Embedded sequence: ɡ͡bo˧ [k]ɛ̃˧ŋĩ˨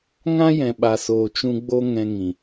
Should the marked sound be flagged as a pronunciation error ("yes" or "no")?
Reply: yes